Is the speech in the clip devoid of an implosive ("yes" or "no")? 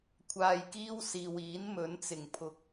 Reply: yes